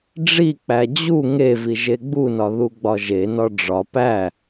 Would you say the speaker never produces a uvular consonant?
yes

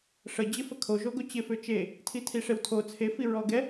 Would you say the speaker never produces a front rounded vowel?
no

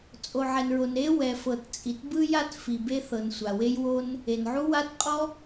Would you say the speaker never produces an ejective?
no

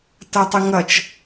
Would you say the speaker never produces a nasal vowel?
yes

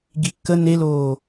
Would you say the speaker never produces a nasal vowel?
yes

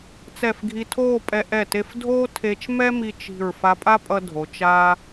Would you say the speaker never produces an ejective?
no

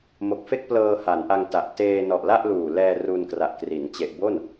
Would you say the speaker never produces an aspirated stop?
yes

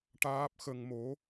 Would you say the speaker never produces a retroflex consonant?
no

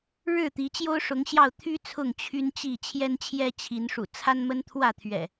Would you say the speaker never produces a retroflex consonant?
no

